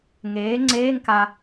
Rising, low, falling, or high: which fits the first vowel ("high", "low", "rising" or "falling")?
rising